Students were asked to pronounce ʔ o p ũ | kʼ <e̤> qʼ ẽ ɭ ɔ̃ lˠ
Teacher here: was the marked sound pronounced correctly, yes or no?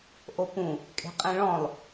yes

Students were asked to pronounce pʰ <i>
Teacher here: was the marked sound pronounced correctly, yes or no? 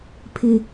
no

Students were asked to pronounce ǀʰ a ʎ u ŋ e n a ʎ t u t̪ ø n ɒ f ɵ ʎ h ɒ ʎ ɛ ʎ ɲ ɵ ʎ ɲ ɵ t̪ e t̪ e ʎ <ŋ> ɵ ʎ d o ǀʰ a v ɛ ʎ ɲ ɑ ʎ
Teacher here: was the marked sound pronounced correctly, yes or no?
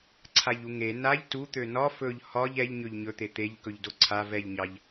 no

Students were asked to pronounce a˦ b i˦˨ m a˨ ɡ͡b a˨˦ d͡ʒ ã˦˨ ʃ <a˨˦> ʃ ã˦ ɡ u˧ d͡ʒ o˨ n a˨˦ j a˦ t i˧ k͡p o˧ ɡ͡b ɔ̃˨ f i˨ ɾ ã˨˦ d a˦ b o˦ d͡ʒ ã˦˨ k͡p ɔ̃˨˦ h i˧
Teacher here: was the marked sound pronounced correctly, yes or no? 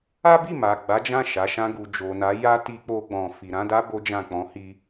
yes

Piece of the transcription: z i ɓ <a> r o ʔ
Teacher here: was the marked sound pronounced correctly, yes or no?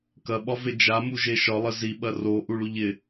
no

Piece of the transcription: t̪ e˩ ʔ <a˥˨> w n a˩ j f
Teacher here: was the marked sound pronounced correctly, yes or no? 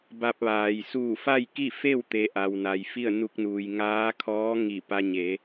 no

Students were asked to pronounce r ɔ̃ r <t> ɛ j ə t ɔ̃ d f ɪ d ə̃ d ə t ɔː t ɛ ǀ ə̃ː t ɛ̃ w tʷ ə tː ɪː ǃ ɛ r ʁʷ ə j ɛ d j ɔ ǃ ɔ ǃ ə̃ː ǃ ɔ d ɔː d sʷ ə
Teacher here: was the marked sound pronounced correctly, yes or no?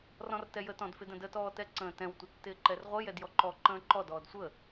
yes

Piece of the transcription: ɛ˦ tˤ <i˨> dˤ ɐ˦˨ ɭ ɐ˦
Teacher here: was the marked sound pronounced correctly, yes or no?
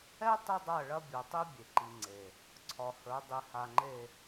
no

